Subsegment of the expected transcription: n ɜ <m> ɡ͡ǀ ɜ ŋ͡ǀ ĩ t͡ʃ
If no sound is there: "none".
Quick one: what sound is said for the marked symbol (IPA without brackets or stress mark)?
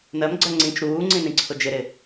m